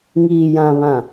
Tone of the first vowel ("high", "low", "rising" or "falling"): low